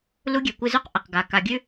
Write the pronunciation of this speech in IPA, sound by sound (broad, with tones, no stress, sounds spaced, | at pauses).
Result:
l u˦ ɡʲ e˨ kʷ ɨ˧ z ʉ˦ q ʔ ə˨ q ɡ a˨ k a˨ ɡʲ ʉ˧